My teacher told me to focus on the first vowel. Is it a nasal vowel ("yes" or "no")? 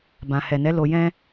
yes